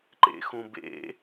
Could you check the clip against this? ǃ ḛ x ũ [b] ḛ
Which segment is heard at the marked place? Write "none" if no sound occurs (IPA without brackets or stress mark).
b